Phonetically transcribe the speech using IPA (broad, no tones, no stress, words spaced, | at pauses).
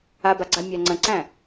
abaɡ͡ǀa mʲæŋ͡ǀə̃ǀæ̃